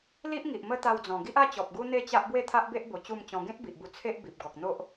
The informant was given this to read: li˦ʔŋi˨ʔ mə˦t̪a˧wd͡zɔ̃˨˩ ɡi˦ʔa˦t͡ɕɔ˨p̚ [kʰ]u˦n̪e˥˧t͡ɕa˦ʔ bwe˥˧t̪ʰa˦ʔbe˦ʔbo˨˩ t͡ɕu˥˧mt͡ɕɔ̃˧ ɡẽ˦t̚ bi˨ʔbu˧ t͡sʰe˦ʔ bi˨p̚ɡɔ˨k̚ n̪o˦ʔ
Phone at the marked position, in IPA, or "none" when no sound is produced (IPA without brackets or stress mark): ɡ